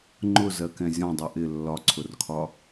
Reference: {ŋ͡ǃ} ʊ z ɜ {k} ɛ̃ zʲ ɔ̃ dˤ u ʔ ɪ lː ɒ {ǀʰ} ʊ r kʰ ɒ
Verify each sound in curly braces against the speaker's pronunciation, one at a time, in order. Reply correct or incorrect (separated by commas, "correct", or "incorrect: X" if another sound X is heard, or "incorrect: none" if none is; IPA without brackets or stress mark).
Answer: correct, correct, correct